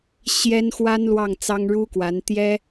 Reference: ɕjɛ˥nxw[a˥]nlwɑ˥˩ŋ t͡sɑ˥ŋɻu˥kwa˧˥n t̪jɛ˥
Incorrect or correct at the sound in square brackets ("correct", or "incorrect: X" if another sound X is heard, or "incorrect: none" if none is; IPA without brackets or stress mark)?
correct